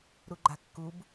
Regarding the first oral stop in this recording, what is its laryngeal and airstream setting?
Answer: click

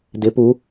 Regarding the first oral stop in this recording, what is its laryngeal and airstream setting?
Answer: plain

